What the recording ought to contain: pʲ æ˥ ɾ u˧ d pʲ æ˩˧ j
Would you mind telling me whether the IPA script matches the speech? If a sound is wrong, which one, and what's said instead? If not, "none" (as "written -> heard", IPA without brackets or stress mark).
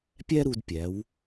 j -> w